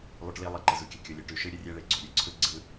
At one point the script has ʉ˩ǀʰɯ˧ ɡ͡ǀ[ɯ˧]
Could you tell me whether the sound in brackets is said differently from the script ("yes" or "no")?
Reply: no